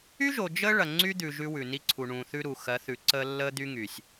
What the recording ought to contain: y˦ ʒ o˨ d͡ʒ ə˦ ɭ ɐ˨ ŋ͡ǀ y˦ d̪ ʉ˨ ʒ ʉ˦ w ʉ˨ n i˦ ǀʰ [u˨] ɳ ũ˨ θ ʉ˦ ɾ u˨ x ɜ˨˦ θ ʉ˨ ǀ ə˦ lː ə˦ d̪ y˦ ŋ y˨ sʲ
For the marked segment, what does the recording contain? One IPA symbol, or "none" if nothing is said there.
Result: u˨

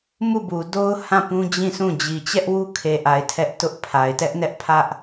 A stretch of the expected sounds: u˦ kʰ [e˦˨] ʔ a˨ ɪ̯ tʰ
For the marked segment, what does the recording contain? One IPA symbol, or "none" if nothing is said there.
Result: e˨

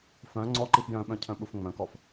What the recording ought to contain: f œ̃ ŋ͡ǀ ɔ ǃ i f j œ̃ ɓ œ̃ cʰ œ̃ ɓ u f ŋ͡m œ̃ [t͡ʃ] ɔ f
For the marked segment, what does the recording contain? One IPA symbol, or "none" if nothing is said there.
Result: k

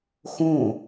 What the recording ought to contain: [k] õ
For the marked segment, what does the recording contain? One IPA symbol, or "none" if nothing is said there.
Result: x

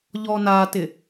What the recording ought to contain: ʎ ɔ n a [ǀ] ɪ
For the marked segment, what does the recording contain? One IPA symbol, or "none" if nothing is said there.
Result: t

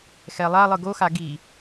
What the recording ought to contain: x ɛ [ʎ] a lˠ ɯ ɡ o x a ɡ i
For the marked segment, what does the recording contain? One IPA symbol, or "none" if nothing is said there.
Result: lˠ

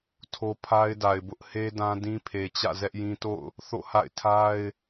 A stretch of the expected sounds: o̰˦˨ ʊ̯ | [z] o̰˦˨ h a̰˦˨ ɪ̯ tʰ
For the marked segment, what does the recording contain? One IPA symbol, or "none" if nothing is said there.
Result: θ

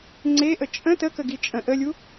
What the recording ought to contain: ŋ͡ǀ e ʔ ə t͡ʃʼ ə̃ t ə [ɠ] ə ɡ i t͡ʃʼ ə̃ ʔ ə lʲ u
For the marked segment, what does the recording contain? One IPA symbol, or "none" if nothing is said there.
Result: k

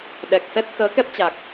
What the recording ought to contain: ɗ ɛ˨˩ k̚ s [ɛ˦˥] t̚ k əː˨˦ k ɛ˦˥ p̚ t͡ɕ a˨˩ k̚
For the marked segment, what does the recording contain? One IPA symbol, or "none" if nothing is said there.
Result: ɛ˦˥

